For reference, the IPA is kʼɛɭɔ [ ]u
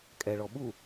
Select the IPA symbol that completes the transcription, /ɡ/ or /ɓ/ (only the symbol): ɓ